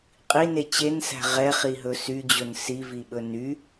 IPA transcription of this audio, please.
qʼine t͡ɕensæ̤ ʁɛχiɦɵ syd͡ʑɵn siviɓɵ ny

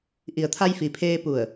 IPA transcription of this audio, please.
ʔi˩ə̯t̪ʰa˧jfi˩pʰeː˧ pu˧˩ə̯

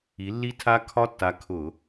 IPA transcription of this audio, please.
i˨˥lːi˦˥tʰa˦˥ kʰɒ˦˥tːa˨˥kʰʊ˧˩˧

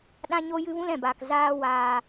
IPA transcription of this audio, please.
ɗã˦ɲo˦ jɨ˦vũ˦lɛ̃˨baː˨k zaː˦ waː˨

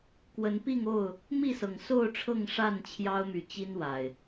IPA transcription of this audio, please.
kwə˨˦npi˥˨ŋo˥˨ʊ̯ | mi˥˨sɤ˨˩ŋso˥˨ʊ̯ʈ͡ʂʰɤ˥˨ŋ ʂa˥˨n t͡ɕʰjɑ˦ʊ̯ my˨˦ t͡ɕi˦n wa˨˩ɪ̯

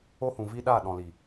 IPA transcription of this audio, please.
o˦hũ˨vi˦ ɗa˦˨ ɗɔ̃˨ li˨

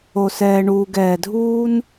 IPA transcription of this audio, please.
o˨sɛː˨ ɳuː˨ɡ ɛː˨dʱuː˦n

